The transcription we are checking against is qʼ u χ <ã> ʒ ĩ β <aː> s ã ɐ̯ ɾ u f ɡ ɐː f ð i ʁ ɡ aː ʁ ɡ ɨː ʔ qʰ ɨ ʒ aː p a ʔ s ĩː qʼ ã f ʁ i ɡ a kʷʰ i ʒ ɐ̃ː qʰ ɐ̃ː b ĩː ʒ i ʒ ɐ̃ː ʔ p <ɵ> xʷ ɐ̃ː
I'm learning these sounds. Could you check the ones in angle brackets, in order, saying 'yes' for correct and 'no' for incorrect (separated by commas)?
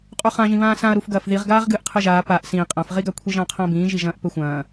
yes, no, yes